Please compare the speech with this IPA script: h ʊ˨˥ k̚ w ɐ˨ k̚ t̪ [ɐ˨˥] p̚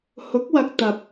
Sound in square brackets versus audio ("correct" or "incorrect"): correct